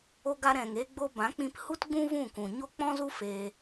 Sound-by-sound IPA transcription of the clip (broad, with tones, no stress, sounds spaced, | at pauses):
o˧ ɡ a˧ ɾ ɛ̃˨ ŋ eː˧ ɡ͡b o˧ b ã˨˦ k͡p ĩ˧ p h u˦ t ɡ͡b ũ˦ v ũ˦˨ k ũ˨ ɲ o˦ k͡p ɔ̃˦ z u˦ f eː˧